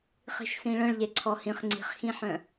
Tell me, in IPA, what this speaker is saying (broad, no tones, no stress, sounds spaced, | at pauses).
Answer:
χ i̤ ʃ s ĩ ɭ œ̃ ɭ ʎ e ǀʰ ɔ h ĩ χ ŋ͡ǀ i̤ χ x ĩ ħ œ̃